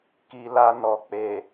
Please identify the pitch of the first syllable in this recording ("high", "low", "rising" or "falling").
low